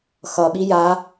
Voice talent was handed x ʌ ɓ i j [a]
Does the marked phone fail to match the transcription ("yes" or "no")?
no